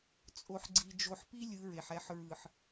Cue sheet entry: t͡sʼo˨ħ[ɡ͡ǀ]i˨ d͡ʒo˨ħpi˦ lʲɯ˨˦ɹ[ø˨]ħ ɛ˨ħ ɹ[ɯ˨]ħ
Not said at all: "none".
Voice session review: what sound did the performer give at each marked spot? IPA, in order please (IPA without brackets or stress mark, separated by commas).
ɡ͡ǀ, e˨, ɯ˨